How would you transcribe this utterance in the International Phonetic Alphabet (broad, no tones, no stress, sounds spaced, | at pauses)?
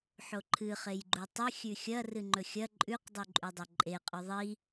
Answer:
ħ o ǃʰ ɨ χ e j ɡ͡ǃ u tˤ ɨ xʲ ʉ xʲ ɐ r ɨ ŋ͡ǃ ɵ xʲ ɐ ǃʼ ʉ q dˤ ʉ ǃʼ ʉ dˤ ɐ ǃʼ e qʼ ʉ ðˤ i